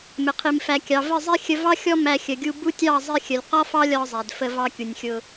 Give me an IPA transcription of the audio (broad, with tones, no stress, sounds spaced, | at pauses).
m ɪ˨ qʰ i˨ m f æ˨ kʲ ɑ˨ v ə˦˨ zˤ i˦ xʲ ə˧ v ɑ˦ xʲ ɔ˦ m æ˧ xʲ ə˨ ɡʲ u˧ b u˦ tʲ ɑ˦˨ zˤ i˧ xʲ ə˨ lʲ q ɒ˦ f ɑ˦ lʲ ɒ˧ zˤ æ˨ d f ə˧ v ɑ˧ kʲ u˨ nʲ xʲ ʊ˧